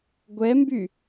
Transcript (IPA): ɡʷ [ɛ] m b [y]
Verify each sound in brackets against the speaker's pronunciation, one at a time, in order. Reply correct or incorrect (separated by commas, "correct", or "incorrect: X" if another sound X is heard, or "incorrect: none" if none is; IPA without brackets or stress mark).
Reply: correct, correct